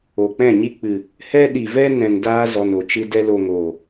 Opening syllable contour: low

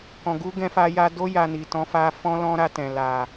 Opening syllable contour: low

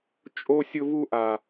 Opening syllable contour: high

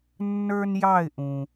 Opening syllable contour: high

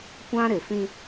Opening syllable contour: high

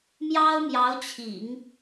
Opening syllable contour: high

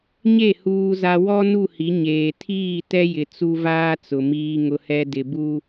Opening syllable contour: falling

